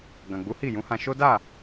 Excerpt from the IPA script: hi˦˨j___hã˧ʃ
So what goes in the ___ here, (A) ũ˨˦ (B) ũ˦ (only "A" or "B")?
A